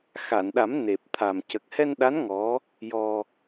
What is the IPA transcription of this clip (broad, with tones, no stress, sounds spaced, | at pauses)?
x a˨˩˨ n ɗ a˨˩˦ m n e˨˩ p̚ t̪ʰ a˨˩ m c ə˨˩ k̚ h ɛ˧ n ɗ a˧˥ n ŋ ɔ˧˥ | j ɔ˧